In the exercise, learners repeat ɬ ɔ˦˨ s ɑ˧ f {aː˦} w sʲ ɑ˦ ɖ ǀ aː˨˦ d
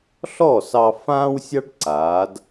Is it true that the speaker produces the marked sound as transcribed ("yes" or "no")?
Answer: no